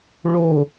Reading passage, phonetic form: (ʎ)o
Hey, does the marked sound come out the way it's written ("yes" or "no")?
no